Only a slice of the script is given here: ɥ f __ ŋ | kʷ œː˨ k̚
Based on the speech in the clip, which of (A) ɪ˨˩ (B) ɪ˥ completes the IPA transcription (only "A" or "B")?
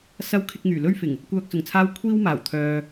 A